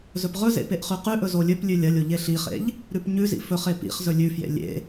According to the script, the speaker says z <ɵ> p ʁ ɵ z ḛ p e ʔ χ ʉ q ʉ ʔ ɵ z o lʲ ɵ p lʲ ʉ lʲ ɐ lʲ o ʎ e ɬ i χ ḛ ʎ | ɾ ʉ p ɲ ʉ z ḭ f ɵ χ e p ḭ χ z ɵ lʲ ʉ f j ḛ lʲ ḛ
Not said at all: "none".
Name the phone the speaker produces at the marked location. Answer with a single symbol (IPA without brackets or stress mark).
ɵ